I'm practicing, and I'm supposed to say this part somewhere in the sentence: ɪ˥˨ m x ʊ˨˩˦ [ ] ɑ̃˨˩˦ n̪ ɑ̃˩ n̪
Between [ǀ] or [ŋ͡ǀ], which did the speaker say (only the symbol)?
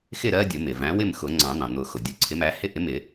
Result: ŋ͡ǀ